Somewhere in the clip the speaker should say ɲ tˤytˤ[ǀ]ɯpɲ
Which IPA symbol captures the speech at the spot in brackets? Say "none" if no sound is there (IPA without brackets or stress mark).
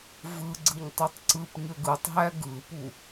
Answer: ǀ